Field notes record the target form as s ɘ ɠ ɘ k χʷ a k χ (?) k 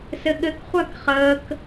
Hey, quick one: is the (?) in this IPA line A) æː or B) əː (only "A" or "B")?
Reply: B